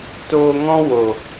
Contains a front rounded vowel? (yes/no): no